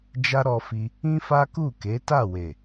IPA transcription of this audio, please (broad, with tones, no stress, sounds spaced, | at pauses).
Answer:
d͡ʒ a˦ ɾ ɔ˧ f i˧ | ĩ˦ f a˦ k u˦˨ k e˨˦ t a˦˨ w e˨